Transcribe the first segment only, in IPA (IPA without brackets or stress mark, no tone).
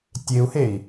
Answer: tʲ